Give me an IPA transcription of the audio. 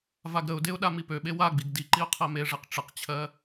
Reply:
vaɡɾəʊ̯deʊ̯ ɗamipøɓe waɡ͡biɡ diǃiʊ̯ qʰɜmeʐeq ʈ͡ʂəqt͡ɕʰɜ

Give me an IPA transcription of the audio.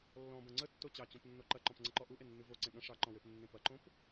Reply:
lːɔ̃bɐ̃ ŋ͡ǀətːo t͡ɕɑt͡ɕõpnːo ǃɐǃɔ̃pŋ͡ǀəǃɔ ʔuʔenːʉ voǀẽ ɠɐ̃ ʂɑǃɔ̃wepnːẽ pɐǃõp

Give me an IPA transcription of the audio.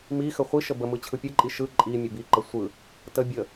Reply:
mi xəχʷi ʃəbəmɯ t͡ɕʰɯpʲɯǃʼi ʃɯ ǃʼimʲə biǃə sʷɯ | tə bʲə

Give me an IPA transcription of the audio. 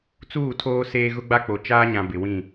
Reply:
t͡suː˦˨tʰoː˦seː˦ ɣʊ˦ɡ͡ba˦k͡po˨ t͡ʃaː˦ɲã˨ bɪ˨wĩ˦˨

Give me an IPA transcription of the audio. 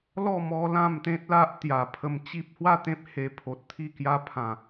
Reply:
lɔ˥˧ mɔ˦lã˥˧m t̪ẽ˦t̚la˦ʔ t̪ja˨˩pʰə˧mt͡ɕi˦p̚ hwa˥˧t̪ẽ˦p̚ he˧pʰo˨t̚t̪ʰi˥˧kja˦ pʰã˨˩

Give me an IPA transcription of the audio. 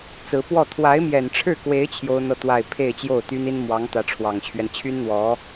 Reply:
t͡sɹ̩˧˥pwɔ˥˩ t̪ʰwa˧˥ɪ̯mjɛ˨˩nʈ͡ʂʰɻ̩˥˩kwe˧˥ɪ̯ t͡ɕʰjo˥ʊ̯n̪ɤ˥˧t̪wa˥˧ɪ̯ pʰe˥˧ɪ̯t͡ɕjo˥˩ʊ̯t̪y˥ni˥n mwɑ˧˥ŋ t̪ä˧˥ʈ͡ʂʰwɑ˨˩ŋt͡ɕʰɥɛ˦n t͡ɕʰy˥nn̪wɔ˧˥

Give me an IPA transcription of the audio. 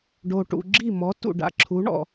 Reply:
ɖo˨ʈṵ˨ɡ͡ǁi˦˨ mɔ˨˦ tṵ˨ɖa̰˨ǁʰu˨˦ ɳɔ̰˧

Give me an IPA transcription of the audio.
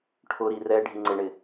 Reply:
ʈʰʊɾi rɛ ɖʱiŋ͡ǀɪɳɪ

